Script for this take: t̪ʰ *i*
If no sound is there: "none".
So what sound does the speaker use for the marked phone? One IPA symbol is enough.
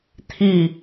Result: i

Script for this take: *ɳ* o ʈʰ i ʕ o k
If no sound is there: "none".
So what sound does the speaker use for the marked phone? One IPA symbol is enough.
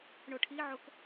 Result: ɳ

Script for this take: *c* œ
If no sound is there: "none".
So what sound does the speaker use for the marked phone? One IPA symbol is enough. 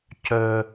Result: c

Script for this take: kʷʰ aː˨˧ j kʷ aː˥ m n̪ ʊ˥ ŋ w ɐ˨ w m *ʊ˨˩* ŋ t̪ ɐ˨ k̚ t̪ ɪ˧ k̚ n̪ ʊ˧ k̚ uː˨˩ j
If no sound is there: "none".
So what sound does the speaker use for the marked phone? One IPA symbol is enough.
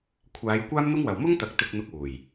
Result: ʊ˥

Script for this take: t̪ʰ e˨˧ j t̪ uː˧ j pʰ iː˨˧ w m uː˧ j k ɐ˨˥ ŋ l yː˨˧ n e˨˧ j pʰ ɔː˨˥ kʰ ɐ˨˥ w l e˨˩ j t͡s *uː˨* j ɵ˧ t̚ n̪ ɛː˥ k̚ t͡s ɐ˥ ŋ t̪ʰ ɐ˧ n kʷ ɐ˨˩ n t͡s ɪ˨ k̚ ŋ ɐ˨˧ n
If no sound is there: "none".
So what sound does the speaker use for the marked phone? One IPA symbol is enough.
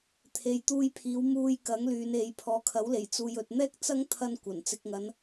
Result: uː˧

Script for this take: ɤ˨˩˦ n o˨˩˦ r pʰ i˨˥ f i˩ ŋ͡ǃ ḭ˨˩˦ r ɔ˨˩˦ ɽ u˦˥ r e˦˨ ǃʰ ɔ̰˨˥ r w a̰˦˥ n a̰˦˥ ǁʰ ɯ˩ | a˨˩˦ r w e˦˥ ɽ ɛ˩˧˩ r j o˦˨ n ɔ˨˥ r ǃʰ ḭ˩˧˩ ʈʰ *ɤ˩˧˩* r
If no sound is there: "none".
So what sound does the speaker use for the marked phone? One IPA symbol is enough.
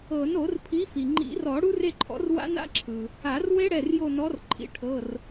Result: ɤ˩˧˩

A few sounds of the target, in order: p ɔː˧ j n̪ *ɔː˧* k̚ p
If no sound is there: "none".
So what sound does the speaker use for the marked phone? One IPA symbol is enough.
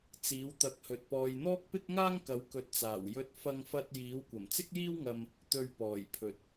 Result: ɔː˥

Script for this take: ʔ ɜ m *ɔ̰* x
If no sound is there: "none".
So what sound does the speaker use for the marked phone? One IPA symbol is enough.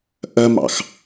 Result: ɑ̰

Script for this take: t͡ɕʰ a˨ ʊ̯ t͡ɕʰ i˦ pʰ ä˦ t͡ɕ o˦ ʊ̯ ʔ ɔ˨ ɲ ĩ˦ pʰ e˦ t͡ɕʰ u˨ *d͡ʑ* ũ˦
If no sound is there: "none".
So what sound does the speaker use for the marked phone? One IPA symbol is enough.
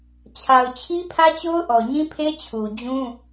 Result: d͡ʑ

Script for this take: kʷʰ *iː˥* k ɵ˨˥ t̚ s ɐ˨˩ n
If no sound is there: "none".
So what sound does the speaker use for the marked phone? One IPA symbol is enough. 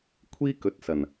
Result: iː˥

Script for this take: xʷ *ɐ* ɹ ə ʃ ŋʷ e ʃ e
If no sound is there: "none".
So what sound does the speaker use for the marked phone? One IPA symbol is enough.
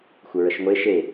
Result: ə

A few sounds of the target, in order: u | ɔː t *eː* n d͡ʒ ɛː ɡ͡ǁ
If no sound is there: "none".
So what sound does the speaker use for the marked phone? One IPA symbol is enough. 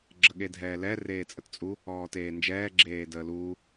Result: eː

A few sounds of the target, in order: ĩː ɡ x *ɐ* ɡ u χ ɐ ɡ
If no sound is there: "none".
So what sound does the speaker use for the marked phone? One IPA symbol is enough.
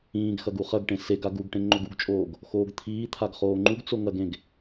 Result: ɐ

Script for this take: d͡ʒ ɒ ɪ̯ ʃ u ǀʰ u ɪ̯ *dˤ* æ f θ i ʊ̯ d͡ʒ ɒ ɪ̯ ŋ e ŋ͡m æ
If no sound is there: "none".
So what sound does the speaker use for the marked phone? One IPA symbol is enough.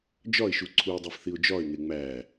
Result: dˤ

